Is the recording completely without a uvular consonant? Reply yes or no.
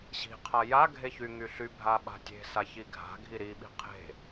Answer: no